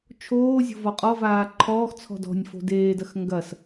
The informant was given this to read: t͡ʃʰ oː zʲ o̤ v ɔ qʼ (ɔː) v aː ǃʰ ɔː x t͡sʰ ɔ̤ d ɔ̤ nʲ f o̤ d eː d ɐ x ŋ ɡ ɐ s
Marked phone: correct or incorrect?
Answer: incorrect